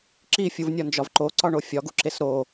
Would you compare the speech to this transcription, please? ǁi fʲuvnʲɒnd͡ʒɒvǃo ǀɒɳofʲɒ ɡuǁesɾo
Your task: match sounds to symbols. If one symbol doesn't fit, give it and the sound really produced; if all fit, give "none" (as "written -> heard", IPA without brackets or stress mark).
none